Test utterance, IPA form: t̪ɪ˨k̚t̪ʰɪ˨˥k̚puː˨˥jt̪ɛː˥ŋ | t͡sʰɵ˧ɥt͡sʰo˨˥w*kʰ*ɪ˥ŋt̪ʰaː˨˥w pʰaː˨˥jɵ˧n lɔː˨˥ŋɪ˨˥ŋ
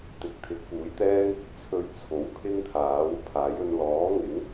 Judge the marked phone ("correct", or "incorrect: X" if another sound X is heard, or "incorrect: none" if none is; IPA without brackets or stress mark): correct